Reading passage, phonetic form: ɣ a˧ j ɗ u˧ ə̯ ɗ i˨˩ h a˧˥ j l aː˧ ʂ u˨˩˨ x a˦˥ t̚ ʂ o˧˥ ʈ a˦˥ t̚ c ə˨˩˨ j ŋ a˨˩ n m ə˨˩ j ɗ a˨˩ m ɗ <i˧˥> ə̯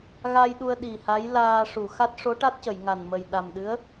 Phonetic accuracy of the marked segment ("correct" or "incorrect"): incorrect